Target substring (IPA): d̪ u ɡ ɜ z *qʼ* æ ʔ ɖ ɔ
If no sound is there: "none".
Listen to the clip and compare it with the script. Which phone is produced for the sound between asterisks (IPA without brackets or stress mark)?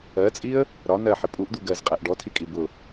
qʼ